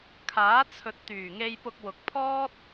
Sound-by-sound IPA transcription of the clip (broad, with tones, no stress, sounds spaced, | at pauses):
kʰ aː˨˥ t͡sʰ ɵ˨ t̚ t̪ yː˨˩ ŋ e˧ j p ʊ˧ k̚ w ʊ˨ k̚ pʰ ɔː˥ t̚